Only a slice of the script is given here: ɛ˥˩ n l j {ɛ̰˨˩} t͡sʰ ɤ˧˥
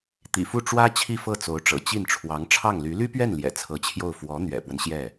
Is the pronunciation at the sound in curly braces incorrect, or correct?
correct